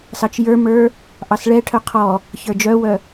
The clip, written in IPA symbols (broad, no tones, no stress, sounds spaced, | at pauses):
s ɑ t͡ʃ j ə˞ m ə˞ | ʔ ɑ s ɭ ɛ ʈʰ œ qʰ ɔ | ç ə˞ d͡ʒ œ w œ